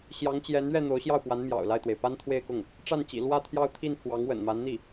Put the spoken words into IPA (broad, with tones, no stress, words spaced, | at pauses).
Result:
ɕjɑ˧˥ŋt͡ɕjɛ˧˥nɥɛ˥˩ n̪o˧˥ʊ̯ɕjɑ˥˩ʊ̯pwa˧˥n mjɑ̰˨˩ʊ̯ la˥˩ɪ̯t̪we˩ɪ̯ pa˥nt̪ʰwe˥˧ɪ̯kʊ˥˩ŋ | ʈ͡ʂa˥˩nt͡ɕḭ˨˩ lwä˥˧ t̪ʰjɑ˥˧ʊ̯t̪ʰi˥˩npʰwɑ˧˥ŋ wə̰˨˩nma˧˥nn̪i˥˩